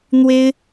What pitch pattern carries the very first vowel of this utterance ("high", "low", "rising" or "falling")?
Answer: high